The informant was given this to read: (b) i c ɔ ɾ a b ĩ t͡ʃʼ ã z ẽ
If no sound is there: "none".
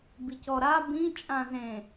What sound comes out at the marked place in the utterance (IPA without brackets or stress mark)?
b